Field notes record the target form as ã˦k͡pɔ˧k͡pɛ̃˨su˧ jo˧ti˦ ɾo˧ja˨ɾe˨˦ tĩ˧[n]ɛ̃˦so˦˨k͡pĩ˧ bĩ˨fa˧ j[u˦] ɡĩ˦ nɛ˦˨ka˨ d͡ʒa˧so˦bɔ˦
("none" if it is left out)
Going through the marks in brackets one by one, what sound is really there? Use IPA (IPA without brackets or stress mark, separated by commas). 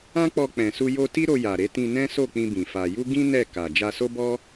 n, u˦